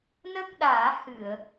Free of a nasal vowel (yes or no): yes